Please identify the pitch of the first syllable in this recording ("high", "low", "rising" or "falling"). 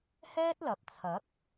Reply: high